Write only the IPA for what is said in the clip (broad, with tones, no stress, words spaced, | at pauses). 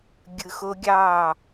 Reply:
ɡʲɯ˧xo˦ɡʲɑː˦˨